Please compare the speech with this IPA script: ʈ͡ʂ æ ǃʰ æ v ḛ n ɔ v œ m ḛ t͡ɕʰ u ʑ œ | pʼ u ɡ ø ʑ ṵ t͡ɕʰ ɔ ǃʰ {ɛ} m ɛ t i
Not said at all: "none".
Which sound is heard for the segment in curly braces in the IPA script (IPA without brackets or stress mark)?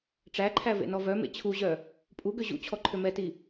ø